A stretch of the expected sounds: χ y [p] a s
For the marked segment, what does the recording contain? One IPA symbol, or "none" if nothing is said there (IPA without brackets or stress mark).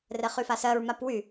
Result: f